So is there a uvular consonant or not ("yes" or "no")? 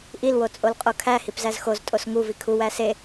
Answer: yes